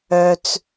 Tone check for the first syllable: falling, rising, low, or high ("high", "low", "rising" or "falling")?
low